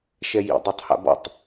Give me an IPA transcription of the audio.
ʃɛjḭ dˤotˤha̰bɔ̰tˤ

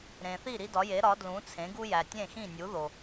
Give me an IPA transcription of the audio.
ɾẽ˩θi˥˩ ɾi˥dɒ˩˥ je˩˥ ɾɒ˩˥dlũ˩˥t͡sʰẽ˩˥ ɡu˥jæ˩ tʲẽ˥˩xĩ˥˩nʲu˩˥ðo˩

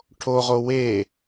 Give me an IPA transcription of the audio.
ʈʰoʁo we

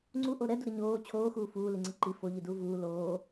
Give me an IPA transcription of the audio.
ŋ͡ǀuʔo ɾɛduɾɪ ɲoː t͡ɕʰoːxuː fuː liŋ͡ǀɪǃi foʎiduː vuː loː

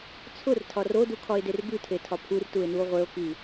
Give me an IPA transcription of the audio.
t͡sʰʊrtʰɒr odukʰɒe̯der bʉtʰetʰɒ pʰurtue̯nuo̯ ʁʷeo̯ki

